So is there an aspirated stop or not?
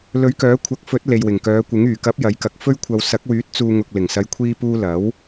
yes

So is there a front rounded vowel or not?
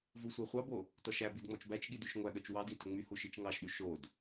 yes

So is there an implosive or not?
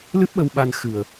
yes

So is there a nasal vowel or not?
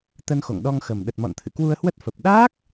no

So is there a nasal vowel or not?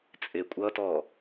no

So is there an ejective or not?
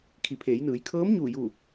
no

